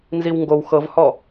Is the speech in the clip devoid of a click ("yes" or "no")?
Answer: yes